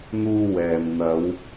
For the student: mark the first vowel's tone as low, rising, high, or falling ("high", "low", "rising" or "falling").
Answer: high